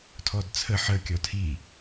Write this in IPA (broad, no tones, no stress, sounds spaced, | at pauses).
tʰ ɔ d t͡sʰ ə ħ ə kʲ ɔ tʰ i